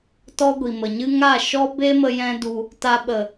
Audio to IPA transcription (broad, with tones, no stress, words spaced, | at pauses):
tɔ˦ɡʷi˨mə˨ɲɨ˦ ŋa˦˨ ʃɔ˦ be˦mə˧ jɛ̃˦du˧ | ta˧ɓə˨